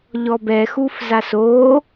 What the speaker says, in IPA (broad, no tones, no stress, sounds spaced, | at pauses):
ʎ ɔ b ɛ x u f z a s oː